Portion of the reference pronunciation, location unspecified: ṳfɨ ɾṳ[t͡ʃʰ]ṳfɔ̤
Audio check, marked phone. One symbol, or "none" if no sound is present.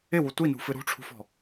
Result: ʈ͡ʂʰ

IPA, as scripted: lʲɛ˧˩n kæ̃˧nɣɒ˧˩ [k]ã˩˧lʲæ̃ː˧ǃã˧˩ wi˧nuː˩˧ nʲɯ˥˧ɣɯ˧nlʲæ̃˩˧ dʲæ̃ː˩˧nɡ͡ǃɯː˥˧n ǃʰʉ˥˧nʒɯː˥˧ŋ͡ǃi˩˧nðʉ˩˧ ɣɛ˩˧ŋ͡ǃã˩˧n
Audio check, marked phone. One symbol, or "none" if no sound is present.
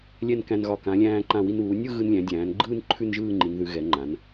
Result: k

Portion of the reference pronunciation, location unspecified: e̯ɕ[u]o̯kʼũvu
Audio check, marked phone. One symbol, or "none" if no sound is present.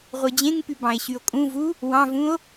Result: y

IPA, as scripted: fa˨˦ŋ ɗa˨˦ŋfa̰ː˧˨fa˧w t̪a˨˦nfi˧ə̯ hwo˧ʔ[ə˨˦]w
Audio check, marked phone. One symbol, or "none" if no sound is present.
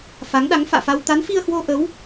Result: ə˨˦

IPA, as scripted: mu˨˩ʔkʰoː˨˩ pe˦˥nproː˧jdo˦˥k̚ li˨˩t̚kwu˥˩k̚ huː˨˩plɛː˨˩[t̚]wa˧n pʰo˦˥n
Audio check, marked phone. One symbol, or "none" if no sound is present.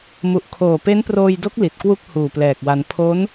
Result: k̚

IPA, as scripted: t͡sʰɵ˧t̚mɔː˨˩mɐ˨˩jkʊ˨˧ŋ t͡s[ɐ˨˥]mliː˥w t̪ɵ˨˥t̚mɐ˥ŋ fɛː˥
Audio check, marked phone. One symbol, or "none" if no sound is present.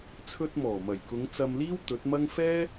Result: ɐ˧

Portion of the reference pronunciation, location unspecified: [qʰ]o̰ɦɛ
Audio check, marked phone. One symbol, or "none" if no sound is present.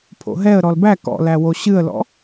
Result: pʰ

